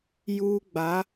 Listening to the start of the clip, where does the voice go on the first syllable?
high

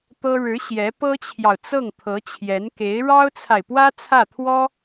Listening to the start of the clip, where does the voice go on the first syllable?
high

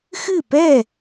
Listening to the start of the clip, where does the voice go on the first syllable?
falling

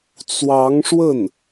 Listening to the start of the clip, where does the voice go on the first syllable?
rising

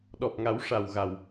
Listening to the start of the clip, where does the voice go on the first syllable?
low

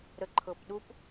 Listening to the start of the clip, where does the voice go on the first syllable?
low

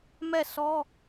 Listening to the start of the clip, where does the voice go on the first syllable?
falling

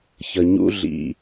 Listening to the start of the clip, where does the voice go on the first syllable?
low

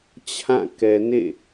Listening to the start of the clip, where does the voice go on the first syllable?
falling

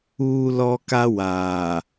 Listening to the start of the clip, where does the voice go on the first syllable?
high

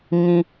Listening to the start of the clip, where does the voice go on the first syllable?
high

